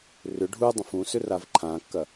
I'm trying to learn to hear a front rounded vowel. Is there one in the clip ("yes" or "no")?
yes